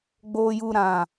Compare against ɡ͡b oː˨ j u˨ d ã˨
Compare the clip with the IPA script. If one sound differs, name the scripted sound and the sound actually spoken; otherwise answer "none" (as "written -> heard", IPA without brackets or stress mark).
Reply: d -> ɾ